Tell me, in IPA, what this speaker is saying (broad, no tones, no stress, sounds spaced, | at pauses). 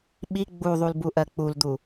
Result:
ɓ i ɡ͡b u ðˤ u l b u ʔ ɜ k͡p u l d̪ u